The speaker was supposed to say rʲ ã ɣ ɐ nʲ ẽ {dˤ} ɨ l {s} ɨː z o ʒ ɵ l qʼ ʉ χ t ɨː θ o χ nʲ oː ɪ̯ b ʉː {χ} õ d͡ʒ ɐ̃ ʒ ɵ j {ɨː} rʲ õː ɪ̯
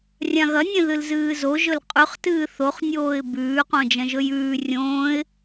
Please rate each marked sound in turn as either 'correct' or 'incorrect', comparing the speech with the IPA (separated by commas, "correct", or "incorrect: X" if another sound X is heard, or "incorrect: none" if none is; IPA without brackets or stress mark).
incorrect: ð, incorrect: z, incorrect: q, incorrect: ʉː